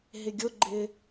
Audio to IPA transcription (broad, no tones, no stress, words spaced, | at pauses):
ɦɪɡʲʊɡ͡ǃɪ